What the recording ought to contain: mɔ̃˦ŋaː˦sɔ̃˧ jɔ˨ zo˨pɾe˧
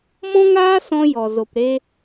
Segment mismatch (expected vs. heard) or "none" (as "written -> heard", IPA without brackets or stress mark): none